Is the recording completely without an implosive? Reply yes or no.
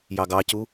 yes